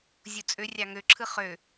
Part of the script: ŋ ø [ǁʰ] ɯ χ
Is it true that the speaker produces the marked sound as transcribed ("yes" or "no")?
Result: yes